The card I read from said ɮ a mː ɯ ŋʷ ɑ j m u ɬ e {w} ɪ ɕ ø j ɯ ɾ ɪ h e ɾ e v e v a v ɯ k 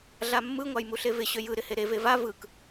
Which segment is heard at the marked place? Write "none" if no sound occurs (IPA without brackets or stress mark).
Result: v